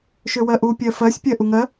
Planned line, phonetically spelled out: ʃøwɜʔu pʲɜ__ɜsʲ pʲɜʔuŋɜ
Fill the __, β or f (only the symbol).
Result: f